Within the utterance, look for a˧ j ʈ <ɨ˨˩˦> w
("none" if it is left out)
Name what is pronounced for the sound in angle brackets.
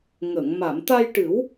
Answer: ɨ˨˩˦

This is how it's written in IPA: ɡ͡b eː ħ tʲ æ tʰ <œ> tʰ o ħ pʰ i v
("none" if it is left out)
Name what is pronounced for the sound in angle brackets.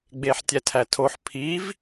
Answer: æ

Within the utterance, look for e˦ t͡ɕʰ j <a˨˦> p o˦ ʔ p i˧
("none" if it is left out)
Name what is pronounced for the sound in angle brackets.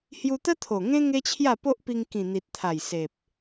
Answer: a˥˧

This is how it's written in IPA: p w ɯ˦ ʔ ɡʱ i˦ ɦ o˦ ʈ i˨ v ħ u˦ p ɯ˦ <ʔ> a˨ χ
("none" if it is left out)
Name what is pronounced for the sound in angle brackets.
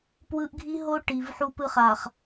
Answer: χ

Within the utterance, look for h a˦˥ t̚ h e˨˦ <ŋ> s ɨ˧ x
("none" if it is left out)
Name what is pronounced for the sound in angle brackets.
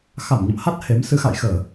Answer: m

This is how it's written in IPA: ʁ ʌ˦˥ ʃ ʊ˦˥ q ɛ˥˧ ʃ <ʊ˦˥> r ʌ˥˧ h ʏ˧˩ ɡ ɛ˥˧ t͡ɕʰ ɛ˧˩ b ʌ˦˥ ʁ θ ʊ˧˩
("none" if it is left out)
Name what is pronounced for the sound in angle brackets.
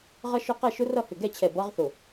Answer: ʊ˦˥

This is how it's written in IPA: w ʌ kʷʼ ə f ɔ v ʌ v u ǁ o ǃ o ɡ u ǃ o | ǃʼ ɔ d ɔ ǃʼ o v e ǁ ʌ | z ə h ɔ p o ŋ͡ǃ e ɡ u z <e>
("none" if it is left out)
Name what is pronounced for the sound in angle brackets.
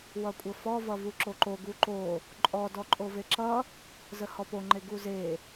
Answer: e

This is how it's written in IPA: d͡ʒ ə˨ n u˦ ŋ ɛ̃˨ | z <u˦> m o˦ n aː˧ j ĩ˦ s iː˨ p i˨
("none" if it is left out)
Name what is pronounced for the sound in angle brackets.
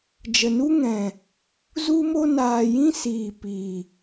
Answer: u˦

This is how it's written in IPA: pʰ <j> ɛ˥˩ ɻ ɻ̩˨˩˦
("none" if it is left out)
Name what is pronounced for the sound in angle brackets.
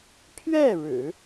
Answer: ɥ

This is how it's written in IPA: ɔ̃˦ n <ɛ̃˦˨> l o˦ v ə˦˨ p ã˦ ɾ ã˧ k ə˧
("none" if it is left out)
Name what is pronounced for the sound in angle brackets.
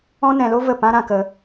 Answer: ɛ̃˧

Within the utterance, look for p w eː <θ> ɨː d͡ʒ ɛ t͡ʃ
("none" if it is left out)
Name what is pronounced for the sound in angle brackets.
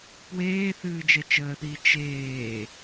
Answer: θ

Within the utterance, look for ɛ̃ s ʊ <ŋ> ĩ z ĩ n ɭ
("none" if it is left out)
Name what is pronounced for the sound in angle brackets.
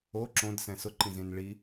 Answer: ǃ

